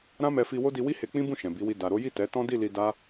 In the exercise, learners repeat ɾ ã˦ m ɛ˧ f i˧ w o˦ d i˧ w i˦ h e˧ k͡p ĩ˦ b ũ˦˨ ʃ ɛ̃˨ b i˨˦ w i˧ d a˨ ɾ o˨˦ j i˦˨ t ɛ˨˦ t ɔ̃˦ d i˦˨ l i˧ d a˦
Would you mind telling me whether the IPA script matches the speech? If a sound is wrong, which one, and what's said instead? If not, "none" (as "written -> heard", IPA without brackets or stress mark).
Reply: none